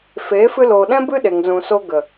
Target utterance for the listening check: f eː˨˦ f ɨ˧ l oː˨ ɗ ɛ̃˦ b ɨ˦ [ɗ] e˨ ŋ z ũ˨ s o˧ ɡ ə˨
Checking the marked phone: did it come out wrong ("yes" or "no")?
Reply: no